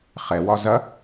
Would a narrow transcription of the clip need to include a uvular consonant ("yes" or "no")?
yes